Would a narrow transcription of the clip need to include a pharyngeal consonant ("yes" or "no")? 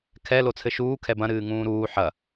yes